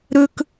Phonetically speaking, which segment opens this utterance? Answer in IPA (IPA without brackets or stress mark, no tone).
ɾ